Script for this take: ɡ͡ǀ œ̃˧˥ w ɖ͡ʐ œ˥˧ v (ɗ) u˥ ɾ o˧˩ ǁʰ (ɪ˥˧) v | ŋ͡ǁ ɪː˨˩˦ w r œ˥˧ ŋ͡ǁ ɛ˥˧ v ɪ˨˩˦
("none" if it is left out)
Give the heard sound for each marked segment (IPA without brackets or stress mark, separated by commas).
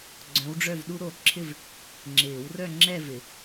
ɗ, ɪ˥˧